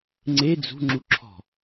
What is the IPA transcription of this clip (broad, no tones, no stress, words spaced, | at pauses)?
ŋ͡ǀe d͡zṳŋ͡ǁuǁʰɔ̤